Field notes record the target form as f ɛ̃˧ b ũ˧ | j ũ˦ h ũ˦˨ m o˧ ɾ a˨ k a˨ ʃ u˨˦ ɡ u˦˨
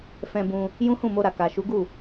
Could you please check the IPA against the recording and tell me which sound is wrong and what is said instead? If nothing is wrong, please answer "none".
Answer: none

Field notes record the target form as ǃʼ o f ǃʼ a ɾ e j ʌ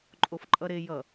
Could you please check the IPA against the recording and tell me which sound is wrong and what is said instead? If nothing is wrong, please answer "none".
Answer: a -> ʌ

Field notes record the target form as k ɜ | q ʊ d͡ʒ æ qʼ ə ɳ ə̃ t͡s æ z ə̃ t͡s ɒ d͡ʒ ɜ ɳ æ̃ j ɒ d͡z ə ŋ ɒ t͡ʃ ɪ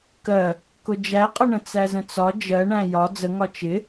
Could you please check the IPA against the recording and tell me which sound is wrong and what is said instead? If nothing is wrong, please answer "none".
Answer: q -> k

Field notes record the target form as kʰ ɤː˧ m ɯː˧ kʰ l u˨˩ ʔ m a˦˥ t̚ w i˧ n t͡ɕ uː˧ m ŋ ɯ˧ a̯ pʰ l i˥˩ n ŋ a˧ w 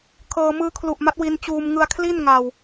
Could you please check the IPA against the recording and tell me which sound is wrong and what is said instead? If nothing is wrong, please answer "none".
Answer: pʰ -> kʰ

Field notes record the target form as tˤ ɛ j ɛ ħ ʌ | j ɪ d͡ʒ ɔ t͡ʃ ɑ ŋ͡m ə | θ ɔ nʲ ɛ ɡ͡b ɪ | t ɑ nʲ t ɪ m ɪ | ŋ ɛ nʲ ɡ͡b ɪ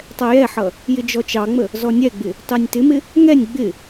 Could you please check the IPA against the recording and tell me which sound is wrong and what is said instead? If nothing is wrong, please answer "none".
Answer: θ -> z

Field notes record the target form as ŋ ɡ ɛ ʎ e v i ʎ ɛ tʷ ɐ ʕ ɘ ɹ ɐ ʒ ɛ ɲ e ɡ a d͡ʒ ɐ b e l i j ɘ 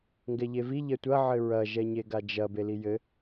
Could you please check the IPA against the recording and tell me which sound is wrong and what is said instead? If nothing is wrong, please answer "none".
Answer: none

